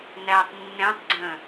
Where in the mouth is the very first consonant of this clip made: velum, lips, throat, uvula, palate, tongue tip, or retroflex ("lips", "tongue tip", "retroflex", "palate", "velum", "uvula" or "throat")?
tongue tip